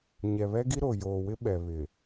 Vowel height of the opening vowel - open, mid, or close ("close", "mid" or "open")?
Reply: mid